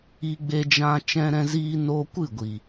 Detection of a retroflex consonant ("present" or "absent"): absent